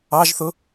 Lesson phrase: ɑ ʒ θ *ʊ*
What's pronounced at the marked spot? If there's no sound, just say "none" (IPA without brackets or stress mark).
ʊ